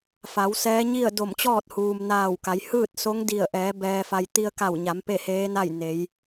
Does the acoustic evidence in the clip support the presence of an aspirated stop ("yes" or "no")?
no